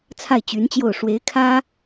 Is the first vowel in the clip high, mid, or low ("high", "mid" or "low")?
low